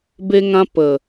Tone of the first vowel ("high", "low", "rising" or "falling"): high